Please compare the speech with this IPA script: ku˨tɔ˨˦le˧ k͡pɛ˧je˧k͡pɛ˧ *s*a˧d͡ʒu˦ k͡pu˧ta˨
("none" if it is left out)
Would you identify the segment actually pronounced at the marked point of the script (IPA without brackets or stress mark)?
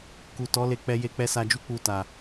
s